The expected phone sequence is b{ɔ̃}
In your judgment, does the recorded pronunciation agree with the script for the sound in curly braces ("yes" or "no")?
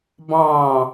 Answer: no